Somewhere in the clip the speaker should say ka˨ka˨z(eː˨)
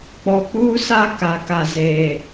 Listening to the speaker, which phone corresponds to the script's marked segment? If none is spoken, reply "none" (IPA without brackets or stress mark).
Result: eː˨